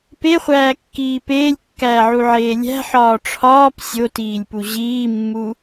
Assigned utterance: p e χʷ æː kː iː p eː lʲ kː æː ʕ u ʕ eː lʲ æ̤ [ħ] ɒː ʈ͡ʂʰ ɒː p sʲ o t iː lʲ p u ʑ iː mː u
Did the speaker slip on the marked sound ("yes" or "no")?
no